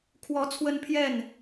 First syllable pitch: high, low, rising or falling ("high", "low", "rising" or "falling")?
rising